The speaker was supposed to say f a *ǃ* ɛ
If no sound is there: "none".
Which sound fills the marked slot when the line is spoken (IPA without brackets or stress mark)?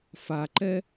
ǃ